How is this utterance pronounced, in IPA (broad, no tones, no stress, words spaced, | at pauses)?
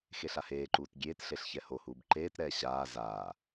xeɬaheːǃuːt ɡʲeːtɬeɬ çɛhohuːb ǃeːtɾɛː ɕaː zaː